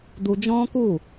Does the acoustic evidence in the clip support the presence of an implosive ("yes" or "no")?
no